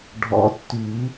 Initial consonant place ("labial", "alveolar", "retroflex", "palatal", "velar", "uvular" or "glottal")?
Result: retroflex